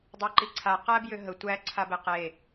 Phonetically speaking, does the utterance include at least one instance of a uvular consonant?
yes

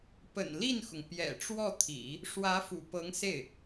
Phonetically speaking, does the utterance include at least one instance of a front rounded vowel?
no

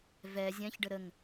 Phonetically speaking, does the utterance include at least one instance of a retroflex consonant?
yes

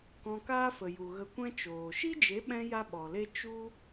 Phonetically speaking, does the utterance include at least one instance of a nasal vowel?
yes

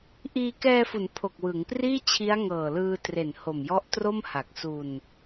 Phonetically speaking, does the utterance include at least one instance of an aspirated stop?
yes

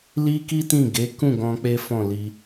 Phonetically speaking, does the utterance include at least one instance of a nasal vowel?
yes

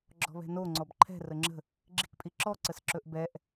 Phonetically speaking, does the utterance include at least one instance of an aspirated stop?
yes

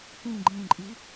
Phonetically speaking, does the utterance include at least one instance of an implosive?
no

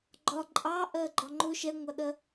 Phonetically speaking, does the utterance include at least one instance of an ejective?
yes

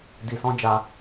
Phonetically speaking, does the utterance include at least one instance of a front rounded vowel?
no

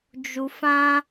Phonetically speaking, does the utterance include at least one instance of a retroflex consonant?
no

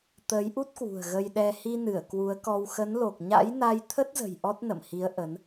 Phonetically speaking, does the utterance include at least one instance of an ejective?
no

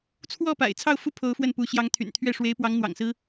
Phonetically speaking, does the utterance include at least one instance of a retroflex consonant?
yes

